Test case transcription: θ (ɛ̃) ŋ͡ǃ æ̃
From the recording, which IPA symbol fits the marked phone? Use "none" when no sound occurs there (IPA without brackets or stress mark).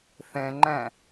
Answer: ɛ̃